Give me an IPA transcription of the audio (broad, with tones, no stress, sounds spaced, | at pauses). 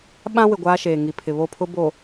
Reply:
ɓ ã˦ w ɪ˨ ɡʷ aː˦ ʃ eː˨ ŋ i˨ pʰ ɪ˨ β o˦˨ pʰ ʊ˦ b o˨